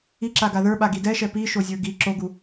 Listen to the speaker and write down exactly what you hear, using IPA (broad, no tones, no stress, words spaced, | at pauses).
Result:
iǁaɡa ðə˞ɓa ɡidɛʃɛ piʃozʲə˞ ɡi ǁoɡu